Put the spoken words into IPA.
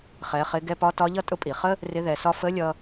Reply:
χ ɛ˩˧ χ ɪ˩˧ ɡ ɛ˧ p ɒ˧˥ t ɒ˧˥ ʎ ʌ˥ tʼ ʊ˧ pʼ i˩ χ ə˥ | r ɪ˧˥ ð ɛ˩˧ s ɒ˥ f ə˧˥ lʲ ʌ˧

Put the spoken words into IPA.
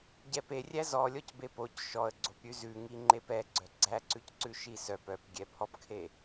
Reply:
ɟ ɛ p e rʲ æ z ɔ lʲ ɔ c b e p o c ʃ ɔ ə̯ ɡ͡ǀ o p ɾʲ ʉ z ʉ ŋ i ŋ͡ǃ e p ɛ ɡ͡ǀ œ ɡ͡ǀ æ ǀ ʉ c ǀ ʉ ʃ i s œ p œ p ɡʲ ɛ pʰ ɔ p kʰ e

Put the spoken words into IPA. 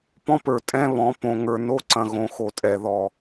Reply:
p ɔ̃˦ p ə˞˨ tʼ ɛ̃˦ β ɔ̃˨˦ p õ˨ ŋ ə˞˨ n o˦ ǀ ɐ̃˨ ɣ õ˨ x o˨ tʼ ɛ˨ ð ɔ˨

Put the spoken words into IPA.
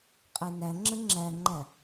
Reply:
qʼ ɛ n æ ŋ͡ǁ ə ŋ͡ǁ æ ŋ͡ǃ æ

